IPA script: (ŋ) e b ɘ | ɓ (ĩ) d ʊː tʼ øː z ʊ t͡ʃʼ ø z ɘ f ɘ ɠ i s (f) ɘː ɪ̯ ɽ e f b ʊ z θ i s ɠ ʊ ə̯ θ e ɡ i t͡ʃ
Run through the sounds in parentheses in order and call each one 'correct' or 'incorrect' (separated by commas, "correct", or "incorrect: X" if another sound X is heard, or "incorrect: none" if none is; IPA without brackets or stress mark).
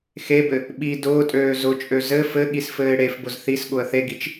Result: incorrect: x, incorrect: i, correct